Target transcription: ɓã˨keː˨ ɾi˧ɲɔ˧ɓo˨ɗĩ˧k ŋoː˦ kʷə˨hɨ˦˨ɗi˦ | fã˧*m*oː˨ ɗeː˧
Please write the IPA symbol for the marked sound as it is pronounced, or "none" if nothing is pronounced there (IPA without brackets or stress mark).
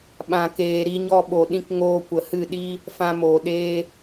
m